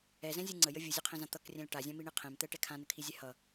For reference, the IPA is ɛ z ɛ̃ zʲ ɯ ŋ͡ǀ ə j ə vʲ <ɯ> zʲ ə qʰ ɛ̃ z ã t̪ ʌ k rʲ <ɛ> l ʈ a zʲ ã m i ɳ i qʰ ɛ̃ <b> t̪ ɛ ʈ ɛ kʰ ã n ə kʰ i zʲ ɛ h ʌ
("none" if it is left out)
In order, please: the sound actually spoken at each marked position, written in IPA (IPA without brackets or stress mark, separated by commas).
ɯ, ɛ̃, m